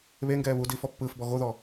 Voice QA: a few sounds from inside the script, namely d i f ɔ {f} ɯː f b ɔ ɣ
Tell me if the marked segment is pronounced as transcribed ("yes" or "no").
no